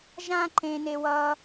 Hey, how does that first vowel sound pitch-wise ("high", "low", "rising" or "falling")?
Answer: high